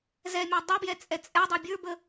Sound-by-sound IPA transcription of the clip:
z ɛ mʲ ɔ dˤ ɛ b j ɛ t͡sʼ ɛ t͡sʼ ɛ dˤ ə˞ bʲ ə˞ b ə

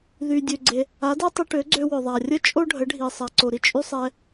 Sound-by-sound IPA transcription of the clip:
ð y˩ dʲ ø˩ ɡ͡ǀ e˩ | a˩˥ d ɛ˥ tˤ y˧ ʈ ø˩˥ ɡ͡ǀ ø˧ w ø˩ ðˤ a˩ rʲ ə˥ t͡ʃʼ o˥ ɖʱ ə˩˥ ɖʱ i˩ sˤ a˩ ǀ o˩ ɾ i˥ t͡ʃʼ y˥ sˤ ɛ˧

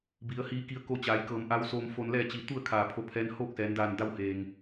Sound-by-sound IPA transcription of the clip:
b i˩˧ ə̯ h iː˧ k i˧ ə̯ k o˧ t͡ɕ aː˩˧ j k ɤː˧˩ m ʔ a˧˥ w s oː˧ m f o˧ n l ɛː˥˨ t͡ɕ i˧˩ t̪ u˥˨ ə̯ kʰ aː˧˩ pʰ o˧˥ pʰ ɛː˧˥ n h oː˥˨ k̚ s ɛː˩˧ n d aː˧˩ n d a˧ w h eː˩ ŋ

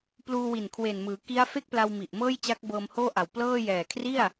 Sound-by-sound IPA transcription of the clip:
p l uː˧ w i˨˩ n kʰ w e˨˩ n m ɯː˩˦ k i˦˥ a̯ f e˥˩ k̚ p l a˧ w m i˨˩ ʔ m ɤː˥˩ j t͡ɕ a˦˥ k̚ b ɤː˧ m h oː˥˩ ʔ a˨˩ w p l ɤː˥˩ j ɛː˨˩ kʰ r i˥˩ a̯

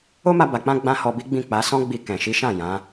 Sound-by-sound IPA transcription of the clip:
o˦ m a˧ b a˨ k͡p ã˧ ɡ͡b ã˦ h ɔ˧ b i˦ ɡ͡b ĩ˦˨ k͡p a˨˦ s ɔ̃˦ ɡ͡b i˧ k ɛ̃˨ ʃ i˨˦ ʃ ã˦˨ j ã˨˦

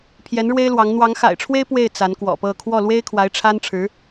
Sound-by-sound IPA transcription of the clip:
pʰ j ɛ˧˥ n ɻ w e˥ ɪ̯ l w ɑ˧˥ ŋ n̪ w ɑ˧˥ ŋ x a̰˨˩ ɪ̯ ʈ͡ʂʰ w e˥ ɪ̯ p w e˥˩ ɪ̯ t͡s a˧˥ n k w ɔ̰˨˩ p ɤ˥˧ kʰ w ɔ˥˩ l w e˥ ɪ̯ kʰ w a˧˥ ɪ̯ ʈ͡ʂʰ a˥ n ʈ͡ʂʰ ɻ̩˧˥

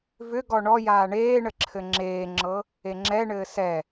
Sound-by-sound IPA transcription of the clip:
v ʏ ɡ ɔ ɳ ɔ j aː ɳ eː ɳ ə ǁʰ ɘ ŋ͡ǁ eː ŋ͡ǁ ɤ | e ŋ͡ǁ ɛ ɳ ɘː s ɛ

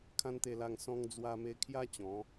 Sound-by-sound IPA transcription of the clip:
kʰ ã˦ n t̪ e˧ l a˧ ŋ s ɔ̃˧ ŋ d͡z w a˧ m e˧ kʰ j a˦ t͡ɕ ɔ̃˨˦

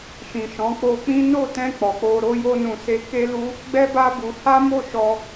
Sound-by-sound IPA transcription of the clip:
ʃ ĩ˨ ʃ ɔ̃˨˦ k͡p o˧ k͡p ĩ˦ n o˦˨ t ɛ̃˧ k͡p ɔ˨ k͡p o˧ ɾ o˦ j o˦ n ũ˧ s e˧ k e˦ l u˦ | ɡ͡b ɛ˦ b a˦ b u˧ h a˦ m o˦˨ ʃ ɔ˧

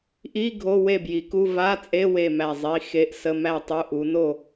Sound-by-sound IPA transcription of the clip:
ʔ i˧˥˧ ɡʱ o˧˥˧ w e˥˨ b j i˨˦ k u˧˥˧ v a˧˥˧ t͡sʼ e˧˥˧ w e˥˨ m æ˥˨ zˤ i˧˥˧ x e˧˥˧ ʔ s ə˧˥˧ m æ˥˨ tˤ u˧˥˧ ʔ u˨˦ n o˥˨

